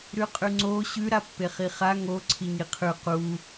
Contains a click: yes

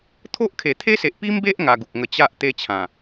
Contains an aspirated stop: yes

